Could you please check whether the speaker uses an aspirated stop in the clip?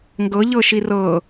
no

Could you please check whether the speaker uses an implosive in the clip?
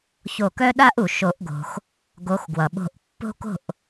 yes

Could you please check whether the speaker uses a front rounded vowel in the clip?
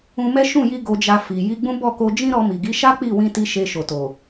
no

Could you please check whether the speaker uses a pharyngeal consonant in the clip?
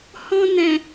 no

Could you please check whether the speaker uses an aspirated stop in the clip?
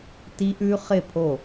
yes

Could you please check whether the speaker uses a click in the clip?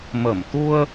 no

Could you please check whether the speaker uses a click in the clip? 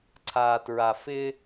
yes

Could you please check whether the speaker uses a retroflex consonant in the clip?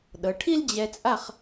yes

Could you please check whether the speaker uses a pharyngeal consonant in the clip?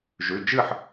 yes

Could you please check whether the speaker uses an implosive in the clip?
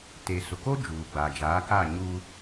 no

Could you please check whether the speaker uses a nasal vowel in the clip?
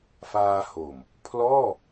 no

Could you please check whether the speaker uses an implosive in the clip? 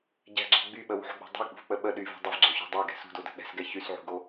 yes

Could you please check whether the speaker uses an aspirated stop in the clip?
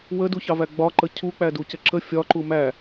yes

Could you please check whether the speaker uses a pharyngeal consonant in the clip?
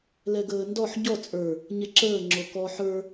yes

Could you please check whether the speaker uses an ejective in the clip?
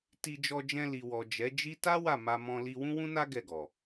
no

